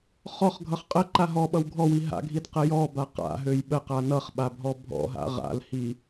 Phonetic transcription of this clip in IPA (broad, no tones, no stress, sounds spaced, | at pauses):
χ ɔ χ ɡʱ ʌ χ qʼ ə ǃ a ɦ ɔ ɓ ʌ w ɡʱ ɔ w i ɦ a̰ ɡʱ i d q ə j ɔ b a q a̰ ɦ ø j ɓ ə q a n ʌ χ ɓ a bʱ ɔ bʱ ɔ̰ ɦ a̰ ʁ a̰ l h i